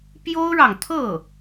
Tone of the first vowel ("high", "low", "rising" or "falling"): high